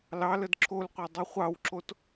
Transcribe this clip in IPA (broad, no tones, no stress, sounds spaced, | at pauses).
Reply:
l ɑ l ə d ǁʰ o l qʷ ɛ dˤ ʉ χʷ ɑ w ǁ o t